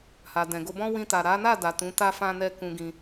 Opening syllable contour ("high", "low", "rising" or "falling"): low